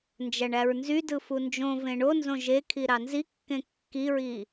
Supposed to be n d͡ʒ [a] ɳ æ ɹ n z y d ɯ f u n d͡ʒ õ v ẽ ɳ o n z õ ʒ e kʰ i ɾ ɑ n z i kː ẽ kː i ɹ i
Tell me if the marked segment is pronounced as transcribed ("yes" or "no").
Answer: no